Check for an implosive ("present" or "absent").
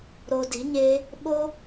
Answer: present